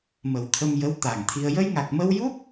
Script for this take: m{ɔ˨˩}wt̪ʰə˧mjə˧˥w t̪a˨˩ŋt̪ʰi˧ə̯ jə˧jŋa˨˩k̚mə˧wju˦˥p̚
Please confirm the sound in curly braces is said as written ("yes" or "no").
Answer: no